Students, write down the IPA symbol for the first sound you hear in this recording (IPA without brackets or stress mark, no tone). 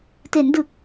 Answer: t